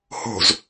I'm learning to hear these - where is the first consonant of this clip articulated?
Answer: throat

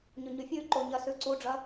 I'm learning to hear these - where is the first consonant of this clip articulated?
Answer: palate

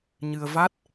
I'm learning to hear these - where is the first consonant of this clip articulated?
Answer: palate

